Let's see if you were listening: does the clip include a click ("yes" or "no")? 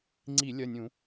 yes